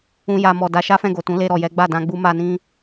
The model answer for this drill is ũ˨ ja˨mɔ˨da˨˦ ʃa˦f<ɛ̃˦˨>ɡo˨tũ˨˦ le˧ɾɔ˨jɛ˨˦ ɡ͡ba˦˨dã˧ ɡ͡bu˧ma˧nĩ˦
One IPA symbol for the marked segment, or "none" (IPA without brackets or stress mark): ɛ̃˦˨